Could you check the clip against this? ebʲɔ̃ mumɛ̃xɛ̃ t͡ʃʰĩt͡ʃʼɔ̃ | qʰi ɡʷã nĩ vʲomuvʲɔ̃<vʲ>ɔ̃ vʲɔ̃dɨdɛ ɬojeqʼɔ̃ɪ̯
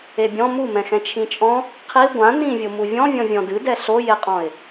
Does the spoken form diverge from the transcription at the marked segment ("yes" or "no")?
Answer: no